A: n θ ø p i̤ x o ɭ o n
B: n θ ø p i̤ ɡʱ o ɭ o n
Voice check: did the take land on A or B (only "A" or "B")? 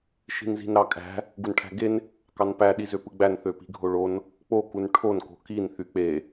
B